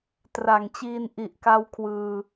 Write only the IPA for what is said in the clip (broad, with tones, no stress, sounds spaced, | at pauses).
t r a˨˩ ŋ t͡ɕ iː˧ n ʔ i˨˩ ʔ k a˧ w kʰ w ɯː˧